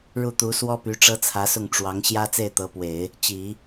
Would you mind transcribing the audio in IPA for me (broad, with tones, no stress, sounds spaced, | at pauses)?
ɻ u˥˩ t̪ u˧˥ s w ɔ˥ p y˧˥ ʈ͡ʂ ɤ˥ t͡sʰ ä˧˥ s ʊ˥˩ ŋ ʈ͡ʂ w ɑ˧˥ ŋ ɕ j ä˥ t͡s e˥˩ ɪ̯ t̪ ɤ˧˥ p w e˨˩˦ ɪ̯ | t͡ɕ i˨˩˦